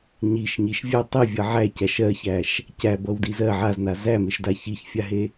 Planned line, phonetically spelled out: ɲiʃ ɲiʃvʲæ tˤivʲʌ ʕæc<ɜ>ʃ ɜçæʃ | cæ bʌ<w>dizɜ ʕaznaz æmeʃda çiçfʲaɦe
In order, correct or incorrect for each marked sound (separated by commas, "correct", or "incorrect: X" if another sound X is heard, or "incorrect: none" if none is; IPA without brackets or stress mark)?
incorrect: æ, correct